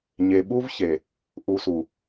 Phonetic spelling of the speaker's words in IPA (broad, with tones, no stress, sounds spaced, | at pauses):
ɲ e˨ ɓ u˦ v ç e˨ | ʔ u˨ s u˨